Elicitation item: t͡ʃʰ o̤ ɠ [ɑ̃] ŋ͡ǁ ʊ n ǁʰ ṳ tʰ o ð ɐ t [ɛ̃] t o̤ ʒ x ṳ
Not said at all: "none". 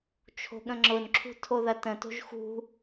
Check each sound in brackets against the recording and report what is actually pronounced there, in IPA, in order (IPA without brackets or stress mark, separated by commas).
ə̃, ə̃